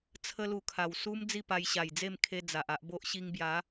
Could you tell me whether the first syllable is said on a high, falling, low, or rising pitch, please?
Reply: high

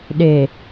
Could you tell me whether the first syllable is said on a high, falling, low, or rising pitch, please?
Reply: low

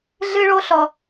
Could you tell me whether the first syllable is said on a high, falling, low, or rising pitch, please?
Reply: high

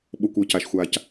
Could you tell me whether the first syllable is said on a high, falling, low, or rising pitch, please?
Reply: low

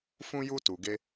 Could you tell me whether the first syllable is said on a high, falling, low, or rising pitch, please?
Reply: high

